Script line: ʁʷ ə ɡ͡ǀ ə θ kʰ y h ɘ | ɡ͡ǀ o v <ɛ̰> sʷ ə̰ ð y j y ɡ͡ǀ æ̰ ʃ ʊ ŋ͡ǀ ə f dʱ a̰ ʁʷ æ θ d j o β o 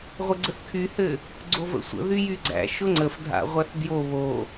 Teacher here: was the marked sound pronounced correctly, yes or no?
no